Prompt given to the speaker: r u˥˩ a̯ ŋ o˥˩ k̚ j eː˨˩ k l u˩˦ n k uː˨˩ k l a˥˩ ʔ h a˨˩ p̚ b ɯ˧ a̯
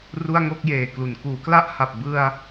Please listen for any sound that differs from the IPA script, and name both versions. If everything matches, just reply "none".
uː˨˩ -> uː˩˦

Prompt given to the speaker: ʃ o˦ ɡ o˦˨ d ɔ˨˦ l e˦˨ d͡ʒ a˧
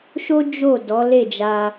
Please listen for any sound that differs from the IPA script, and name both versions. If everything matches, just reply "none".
ɡ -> d͡ʒ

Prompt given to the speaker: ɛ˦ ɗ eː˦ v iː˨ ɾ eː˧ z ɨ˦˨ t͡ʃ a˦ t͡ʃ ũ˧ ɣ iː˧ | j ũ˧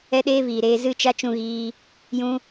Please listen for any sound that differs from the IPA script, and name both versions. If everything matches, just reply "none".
none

